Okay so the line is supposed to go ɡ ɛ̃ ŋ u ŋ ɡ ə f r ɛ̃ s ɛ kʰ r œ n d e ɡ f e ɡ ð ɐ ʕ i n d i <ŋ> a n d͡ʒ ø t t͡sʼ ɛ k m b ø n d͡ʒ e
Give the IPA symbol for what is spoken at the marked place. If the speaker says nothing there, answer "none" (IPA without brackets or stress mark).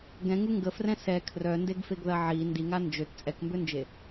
ŋ